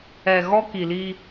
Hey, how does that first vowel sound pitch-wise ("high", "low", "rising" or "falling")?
low